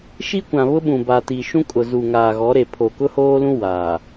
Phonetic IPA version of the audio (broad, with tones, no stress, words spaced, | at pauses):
ʃi˦kʷã˨βʊ˦ɓũ˨ ba˨ti˨ʃũ˦kʼʊ˨ zu˨ŋaː˨ ɣɔ˨˦ɾe˨pʰo˨ kʊ˦hoː˦lũ˦ waː˨